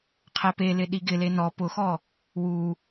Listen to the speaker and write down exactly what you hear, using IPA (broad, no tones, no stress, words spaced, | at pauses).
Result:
qʰɛpelɪ ɗiɡɪle nɔ pʊxɔ | wu